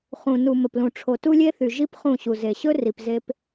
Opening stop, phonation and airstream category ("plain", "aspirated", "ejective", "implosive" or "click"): plain